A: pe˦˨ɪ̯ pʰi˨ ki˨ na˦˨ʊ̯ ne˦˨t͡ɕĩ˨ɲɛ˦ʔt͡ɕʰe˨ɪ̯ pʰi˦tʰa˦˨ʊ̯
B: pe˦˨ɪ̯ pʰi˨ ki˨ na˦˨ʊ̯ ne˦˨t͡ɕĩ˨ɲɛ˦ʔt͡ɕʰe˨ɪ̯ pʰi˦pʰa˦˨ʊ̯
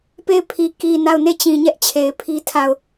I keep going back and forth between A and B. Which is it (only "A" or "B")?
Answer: A